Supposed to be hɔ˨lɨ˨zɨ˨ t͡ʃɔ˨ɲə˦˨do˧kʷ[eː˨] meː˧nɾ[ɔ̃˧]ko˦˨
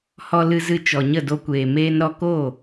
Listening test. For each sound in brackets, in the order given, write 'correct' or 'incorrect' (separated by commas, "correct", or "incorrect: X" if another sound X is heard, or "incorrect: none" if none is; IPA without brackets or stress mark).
correct, incorrect: ɔ˧